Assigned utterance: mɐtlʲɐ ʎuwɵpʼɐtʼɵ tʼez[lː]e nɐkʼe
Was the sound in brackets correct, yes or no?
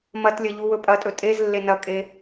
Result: yes